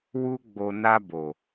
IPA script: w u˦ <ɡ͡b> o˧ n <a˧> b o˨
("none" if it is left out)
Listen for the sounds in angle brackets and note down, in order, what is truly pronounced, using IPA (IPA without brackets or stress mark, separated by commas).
ɡ͡b, a˧